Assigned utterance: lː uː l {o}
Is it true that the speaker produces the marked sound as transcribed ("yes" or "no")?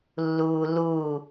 no